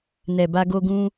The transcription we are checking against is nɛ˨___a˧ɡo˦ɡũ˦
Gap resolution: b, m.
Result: b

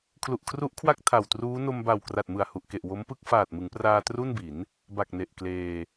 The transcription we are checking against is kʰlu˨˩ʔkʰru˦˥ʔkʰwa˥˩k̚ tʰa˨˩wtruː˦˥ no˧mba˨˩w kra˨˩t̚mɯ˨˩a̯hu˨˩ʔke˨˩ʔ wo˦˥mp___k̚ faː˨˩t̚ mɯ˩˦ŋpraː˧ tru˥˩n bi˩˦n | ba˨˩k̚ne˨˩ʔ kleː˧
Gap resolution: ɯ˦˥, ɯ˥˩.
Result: ɯ˥˩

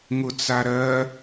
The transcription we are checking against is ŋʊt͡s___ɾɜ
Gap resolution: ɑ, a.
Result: a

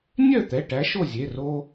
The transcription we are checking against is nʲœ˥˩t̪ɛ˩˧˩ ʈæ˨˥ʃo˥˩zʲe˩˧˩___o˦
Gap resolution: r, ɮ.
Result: r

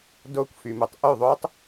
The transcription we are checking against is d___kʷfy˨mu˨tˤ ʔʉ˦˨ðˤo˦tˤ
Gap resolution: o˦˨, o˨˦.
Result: o˦˨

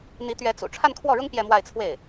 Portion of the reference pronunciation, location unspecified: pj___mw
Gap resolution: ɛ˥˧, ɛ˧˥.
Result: ɛ˥˧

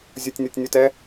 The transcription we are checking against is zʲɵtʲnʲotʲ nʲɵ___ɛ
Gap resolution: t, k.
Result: t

